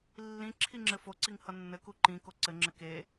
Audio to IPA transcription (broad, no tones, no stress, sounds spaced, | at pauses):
lː ĩ ǁʰ i ŋ͡ǁ ɘ f o ǀ i ŋ h ʌ nː ɘ k u ǃ ĩ k o ǀ ɘ ŋ͡ǁ ɘ k e